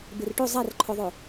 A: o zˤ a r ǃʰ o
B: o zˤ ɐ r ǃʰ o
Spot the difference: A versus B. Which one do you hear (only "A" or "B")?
A